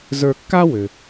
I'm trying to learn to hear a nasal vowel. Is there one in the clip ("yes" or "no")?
no